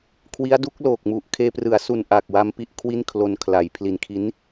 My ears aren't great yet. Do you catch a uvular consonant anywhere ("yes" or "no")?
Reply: no